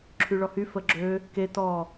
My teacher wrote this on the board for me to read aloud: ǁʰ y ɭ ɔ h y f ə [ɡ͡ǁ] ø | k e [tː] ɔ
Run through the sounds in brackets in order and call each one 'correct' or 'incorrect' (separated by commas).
correct, incorrect